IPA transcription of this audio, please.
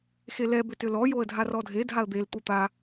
x e l ɛ b ʏ t ʏ l ɔ j o ə̯ dʱ a r ɔ dʱ e dʱ a ə̯ d̪ e l t̪ u t̪ a

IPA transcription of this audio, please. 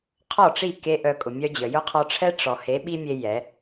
qʰ ɔ˦˨ ʈ͡ʂ i˦˨ k e˦ ʔ œ˧ kʼ ʊ˨ mʲ œ˦ d͡ʑ ə˨ j ʊ˦ qʰ ɔ˧ ʈ͡ʂʰ ɛ˦ ʈ͡ʂ ɔ˨ h e˨˦ ɓ i˦ mʲ e˧ j ɛ˨˦

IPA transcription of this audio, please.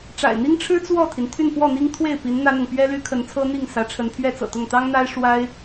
ʈ͡ʂ a̰˨˩ ɪ̯ n̪ i˥ ŋ ʈ͡ʂʰ ɻ̩˥ t͡s w ɔ˥˩ t̪ʰ i˩ n t̪ʰ y˥˧ n f w ɔ˥˩ n̪ i˥ ŋ t̪ʰ w e˥˩ ɪ̯ p i˧˥ n n̪ ä˥ n̪ ʊ˨ ŋ p ɥ ɛ˥ l y˥ kʰ ə˧˥ n t͡sʰ ɤ˥ n̪ i˥˩ ŋ s ä˧˥ ʈ͡ʂʰ ə˧˥ n pʰ ɥ ɛ˥ t͡s ɤ̰˨˩ t̪ ʊ˥˩ ŋ t̪ ɑ˥ ŋ n̪ a˥ ɪ̯ ʂ w a˥ ɪ̯

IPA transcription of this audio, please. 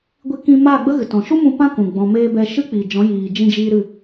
ɡʷ i˧ k ĩ˧ m aː˦˨ ɡ͡b ə˦ ɣ ɨ˨ t ɔ̃˨ ʃ u˦ m ũ˧ p ã˦ k ũ˨ ɡ͡b ɔ̃˨ m eː˧ b ɛ˧ ʃ ɨ˦ k͡p i˨ d͡ʒ ɔ̃˨˦ j iː˨ d͡ʒ ĩ˧ d͡ʒ iː˧ ɾ ɨ˦˨

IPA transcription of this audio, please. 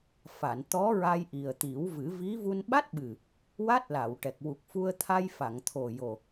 f a˨˩˨ n t̪ ɔ˧˥ ɹ a˧ j ʔ i˨˩ ə̯ t̪ i˨˩˦ w v ɨ˨˩˦ v i˧˥ v u˧ n ɓ a˦˥ t̚ ɓ ɨ˨˩ | w a˦˥ t̚ l a˨˩˨ w ʈ ɛ˨˩ k̚ w u˨˩ k̚ f u˧ ə̯ t̪ʰ a˧ j f a˨˩˨ ŋ t̪ʰ o˨˩ j o˨˩

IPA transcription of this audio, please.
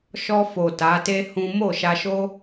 ʃ ɔ˧ f o˨ t a˨˦ t e˦ h ũ˦ m o˦˨ ʃ a˧ ʃ o˦

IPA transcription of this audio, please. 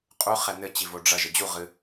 qʼ u χ ɛ n ɘ t͡ɕ i v o ɖ͡ʐ ɐ ʒ ɘ d͡ʑ u ʁ ɨ

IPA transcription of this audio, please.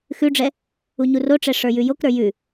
x ʉ ɖ͡ʐ ɛ | u ɲ u r o ʈ͡ʂ ɛ ʂ ə˞ j ʉ j o k ɾ ə˞ j ʉ

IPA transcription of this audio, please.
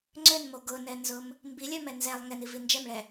ŋ͡ǀ ø n m o ɡ ʊ n ɛ n z ʊ m | m b i lʲ œ m ɛ n z ɛ lˠ ŋ ɛ n i v i n d͡ʒ ɛ m ɭ ɛ

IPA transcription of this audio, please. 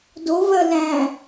d o v ɜ l æ̃

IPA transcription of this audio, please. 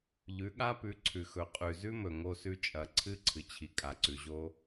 ʎ ʉ˨˦ ɠ a˦ p ʉ˨˦ ǀʰ ʉ˨ x ɵ˨ qʼ ʉ˨ z ʉ˦ m ɵ˨ ŋ o˧ s ʉ˧ t͡ʃʼ ɐ˨ ǀʰ ɨ˦ ǀʰ ɨ˨ t͡ɕʰ i˨ kʼ a˨ ǀ ʉ˨ ʑ o˦

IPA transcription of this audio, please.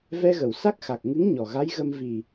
v ɛ˧ ɣ ə˨˩˨ w s a˦˥ k̚ x a˨˩ k̚ ŋ ɨ˧˥ ŋ ɲ ɔ˨˩ ɣ a˧˥ j ɣ ə˧ m v i˨˩

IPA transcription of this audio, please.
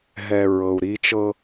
ɦ ɛ˨ ɹ ɤ˨ u̯ ɾ i˦ t͡ʃ ɤ˦

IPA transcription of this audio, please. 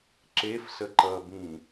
ǁ e f s ə ǃ ʌ b ĩ

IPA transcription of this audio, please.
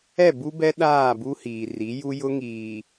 ɛ˦˨ b u˦ b ɛ˦ ɗ aː˦˨ b u˦ h iː˨ r i˨˦ j u˦ j ʊ˦ ŋ iː˨

